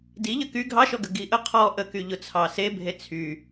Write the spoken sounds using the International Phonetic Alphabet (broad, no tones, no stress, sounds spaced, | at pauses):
d i ʎ ə k y ɡʱ ɑ ʃ ɔ ɡ ə ɡ i ʔ ə qʰ ɔ ʔ ə k y ʎ ʊ t͡sʰ ɑ s e bʱ e t͡sʰ y